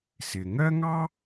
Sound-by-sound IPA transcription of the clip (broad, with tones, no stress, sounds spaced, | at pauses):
s ɪ˩ ŋ ɜ˥ ŋ ɑ˥